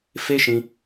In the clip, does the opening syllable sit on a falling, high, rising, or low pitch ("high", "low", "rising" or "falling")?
high